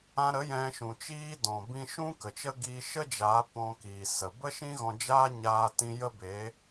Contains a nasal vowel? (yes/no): yes